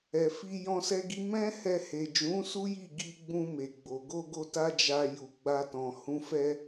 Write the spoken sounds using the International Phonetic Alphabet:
ɛ˨ f i˧ j ɔ̃˧ s ɛ˧ ɡ i˧ m ɛ̃˦ h ɛ˧ h e˨ d͡ʒ ũ˨˦ s u˦ j i˦˨ ɡ i˧ ɡ͡b ũ˧ m e˨ ɡ͡b o˨ ɡ o˧ ɡ o˧ t a˦ d͡ʒ a˧ j u˧ ɡ͡b a˦ t ɔ̃˧ h ũ˦ f ɛ˧

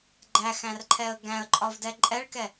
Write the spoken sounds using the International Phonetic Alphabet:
ɡ͡ǃ æ x æ̃ r ǃʰ ɛ ə̯ ɡ æ̃ ə̯ ǃʼ ɒ v d ɛ ǃʼ ɛ ɭ k ɛ

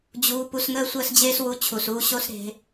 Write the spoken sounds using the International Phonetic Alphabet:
d͡ʑ uː˧ p u˧ s ŋ əː˦ sʷ əː˦ s d͡ʑ eː˦ s w u˧ t͡ɕʰ u˨ s uː˧ ɕ o˦ s ɾ e̤˧

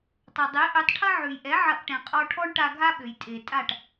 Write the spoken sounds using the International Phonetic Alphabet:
tˤ ɐ˩ dˤ e˩˥ ʔ ø˩˥ tˤ ʈʰ ɐ˥ ʕ ʉ˩ j ʔ ɛ˩˥ ʕ ɐ˧ ʔ ʈ ɛ̃˩ qʼ ɔ˧ ʈʰ ɔ˥ ɳ ʈ a˧ ɡʱ a˥ ɓ ø˩ j tʼ e˩ tʼ a˥˩ ʈ

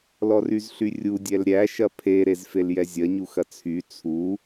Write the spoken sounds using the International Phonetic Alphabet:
l ɔ r y z ɬ y rʲ u dʲ ɛ l ɾʲ æ ʃ ɐ pʰ e ɾ e z f e l j ɛ zʲ ɐ ɲ u x ɐ t͡sʰ y t͡sʰ u

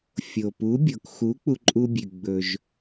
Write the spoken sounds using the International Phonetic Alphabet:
fʲ o˩ p u˩˥ bʲ o˩ k x u˩˥ k͡p u˧ ǃʼ u˧ bʲ ʉ˩ ɡ͡b ɵ˩ ʒ

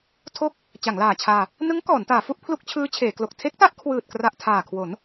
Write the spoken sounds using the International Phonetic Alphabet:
tʰ o˥˩ k̚ | t͡ɕ a˩˦ ŋ l aː˨˩ t͡ɕʰ aː˧ | n ɯ˦˥ ŋ k ɔː˩˦ n t aː˩˦ f u˦˥ ʔ pʰ l u˦˥ k̚ t͡ɕʰ ɯː˦˥ t͡ɕʰ eː˩˦ k l o˨˩ k̚ tʰ e˦˥ k̚ t a˦˥ ʔ kʰ w ɯː˨˩ t̚ k r a˨˩ ʔ tʰ aː˨˩ kʰ w o˩˦ n

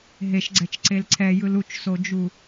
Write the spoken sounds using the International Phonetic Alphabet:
ɦ e ʃ ɡ͡ǀ ɛ t͡ʃ ǀ e l ǀʰ ɛ j ɯ l u t͡ʃ s o d͡ʒ u

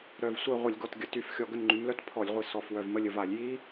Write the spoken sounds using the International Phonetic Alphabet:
ɾ œ˨˩ v sʷ œ˦˨ ʁʷ ə˧˩˧ lʲ ɡ ɔ˨˩ t ɡʲ ə˨˩ t y˧˩˧ f xʲ ɔ˨˩ ɡ ə˦˨ n ŋ͡ǃ y˩˧ m l œ˦˥ t pʰ ɔ˧˩˧ lʲ ʁʷ i˨˩ s ɔ˨˩ f w œ˨˩ v m ə˦˨ lʲ ə˦˨ v a˧˩˧ lʲ j i˦˥

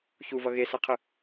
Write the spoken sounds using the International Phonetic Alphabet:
ç u v ʌ ɣ e s ʌ qʰ ɯ

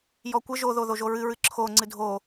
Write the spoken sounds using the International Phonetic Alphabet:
j ɔ kʷ ə ʒ o ð o ð o ʒ o ɹ ɨ ɹ ɨ ǁʰ o ŋ͡ǀ ɨ dʱ o

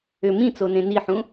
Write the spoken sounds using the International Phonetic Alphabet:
ʏ m ĩ t͡s o n ẽ n i ħ ũ

